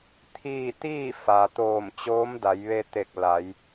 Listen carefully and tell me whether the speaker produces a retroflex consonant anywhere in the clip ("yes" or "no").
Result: no